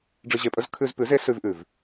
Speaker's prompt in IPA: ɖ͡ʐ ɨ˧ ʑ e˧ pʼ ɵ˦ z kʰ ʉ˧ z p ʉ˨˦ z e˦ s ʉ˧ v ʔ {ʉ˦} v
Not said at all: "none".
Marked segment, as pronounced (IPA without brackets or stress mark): ʉ˨